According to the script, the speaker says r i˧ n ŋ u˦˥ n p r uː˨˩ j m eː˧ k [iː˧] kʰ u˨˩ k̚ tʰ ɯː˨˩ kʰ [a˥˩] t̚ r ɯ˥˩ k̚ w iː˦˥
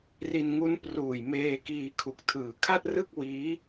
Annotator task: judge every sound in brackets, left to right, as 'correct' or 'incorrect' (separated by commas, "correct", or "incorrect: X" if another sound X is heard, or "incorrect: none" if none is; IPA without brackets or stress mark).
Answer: correct, correct